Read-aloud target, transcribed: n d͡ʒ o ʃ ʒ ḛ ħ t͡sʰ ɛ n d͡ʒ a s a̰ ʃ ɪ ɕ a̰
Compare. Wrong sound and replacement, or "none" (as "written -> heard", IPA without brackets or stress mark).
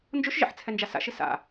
ɕ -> s